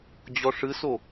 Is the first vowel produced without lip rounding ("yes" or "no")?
no